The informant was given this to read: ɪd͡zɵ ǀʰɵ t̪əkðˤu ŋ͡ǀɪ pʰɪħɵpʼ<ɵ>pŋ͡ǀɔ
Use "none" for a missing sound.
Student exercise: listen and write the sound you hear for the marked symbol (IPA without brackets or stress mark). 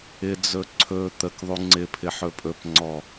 ɵ